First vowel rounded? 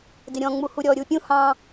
no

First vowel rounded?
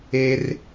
no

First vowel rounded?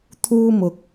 yes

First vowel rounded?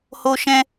yes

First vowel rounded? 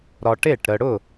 yes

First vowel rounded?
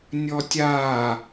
yes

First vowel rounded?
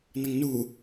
no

